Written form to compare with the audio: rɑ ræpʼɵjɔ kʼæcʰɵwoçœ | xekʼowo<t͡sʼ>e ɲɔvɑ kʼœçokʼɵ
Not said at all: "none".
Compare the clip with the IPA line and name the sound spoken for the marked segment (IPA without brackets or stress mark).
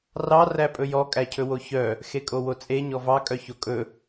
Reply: t͡sʼ